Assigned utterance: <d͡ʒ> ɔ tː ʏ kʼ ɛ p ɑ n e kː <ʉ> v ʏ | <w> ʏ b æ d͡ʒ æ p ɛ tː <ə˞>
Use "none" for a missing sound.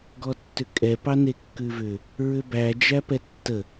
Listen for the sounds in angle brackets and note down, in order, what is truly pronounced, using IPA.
ɡ, ʉ, ɹ, ə

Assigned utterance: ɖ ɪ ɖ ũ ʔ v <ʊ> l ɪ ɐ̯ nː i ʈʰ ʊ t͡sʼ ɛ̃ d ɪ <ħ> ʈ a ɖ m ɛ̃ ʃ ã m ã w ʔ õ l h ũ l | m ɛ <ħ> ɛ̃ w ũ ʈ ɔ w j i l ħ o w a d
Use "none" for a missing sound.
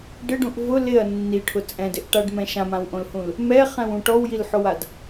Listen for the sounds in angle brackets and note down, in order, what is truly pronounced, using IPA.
ʊ, ʔ, χ

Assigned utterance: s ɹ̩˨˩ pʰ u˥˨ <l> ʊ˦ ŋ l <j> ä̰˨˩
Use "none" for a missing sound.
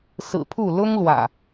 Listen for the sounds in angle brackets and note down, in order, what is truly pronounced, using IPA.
l, w

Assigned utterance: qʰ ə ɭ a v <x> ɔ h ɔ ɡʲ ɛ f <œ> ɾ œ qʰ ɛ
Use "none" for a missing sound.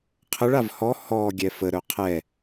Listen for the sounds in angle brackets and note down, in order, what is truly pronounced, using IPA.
h, ə

